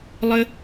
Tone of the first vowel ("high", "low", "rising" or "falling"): high